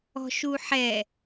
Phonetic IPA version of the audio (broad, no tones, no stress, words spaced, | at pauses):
ɔ̤ʃuħɛ